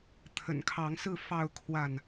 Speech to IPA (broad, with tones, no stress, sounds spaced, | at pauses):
t̪ʰ ə̰˨˩ n kʰ ɑ˨˦ ŋ s ɹ̩˥˨ f ɑ˥˨ ʊ̯ kʰ w a˥˨ n